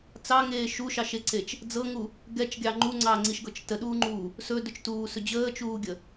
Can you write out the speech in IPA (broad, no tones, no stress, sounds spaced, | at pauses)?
t͡s ɑ ŋ eː ʃ u ʃ ɑ ʃ e ǀ e t͡ʃ | d͡z ɤ ŋ u | ɡ ɛ t͡ʃ ɡʲ ɑ ŋ͡ǃ u ŋ͡ǀ ɑ ŋ͡ǀ i ʃ ɡ ɤ t͡ʃ t ə ɗ uː ŋ͡ǃ uː | s ɵ d ɵ t͡ʃ t uː s ɵ d͡ʑ əː t͡ʃ uː ɡʲ ə